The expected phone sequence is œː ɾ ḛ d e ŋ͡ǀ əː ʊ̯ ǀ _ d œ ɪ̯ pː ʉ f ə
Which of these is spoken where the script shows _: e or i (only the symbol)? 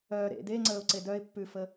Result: e